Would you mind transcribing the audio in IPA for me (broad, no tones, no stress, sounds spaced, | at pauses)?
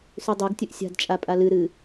s ʉ dˤ e ɡ tʲ ɵ ʔ sʲ a̤ d t͡ʃʼ a pʼ a l ɨ ɾ ɨ